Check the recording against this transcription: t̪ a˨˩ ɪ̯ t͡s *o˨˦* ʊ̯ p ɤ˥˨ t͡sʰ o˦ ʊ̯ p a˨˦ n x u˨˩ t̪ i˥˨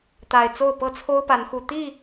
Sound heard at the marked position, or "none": o˥˨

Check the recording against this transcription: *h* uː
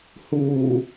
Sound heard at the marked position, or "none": h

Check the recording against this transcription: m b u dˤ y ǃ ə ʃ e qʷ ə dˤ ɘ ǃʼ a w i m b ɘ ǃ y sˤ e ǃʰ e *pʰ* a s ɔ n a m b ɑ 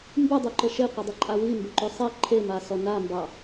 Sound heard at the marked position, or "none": m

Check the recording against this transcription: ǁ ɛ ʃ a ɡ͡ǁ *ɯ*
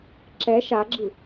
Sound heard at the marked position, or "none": ɯ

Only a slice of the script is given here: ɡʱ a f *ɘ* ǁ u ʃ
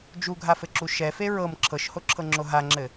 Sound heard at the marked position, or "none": ɘ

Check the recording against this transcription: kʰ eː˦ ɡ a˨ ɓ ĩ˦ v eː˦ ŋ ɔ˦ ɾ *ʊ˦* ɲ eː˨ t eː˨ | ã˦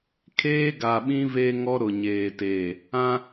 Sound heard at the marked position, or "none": ʊ˨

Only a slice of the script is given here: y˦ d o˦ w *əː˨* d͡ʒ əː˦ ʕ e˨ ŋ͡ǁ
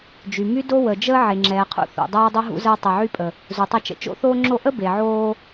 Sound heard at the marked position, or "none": ə˨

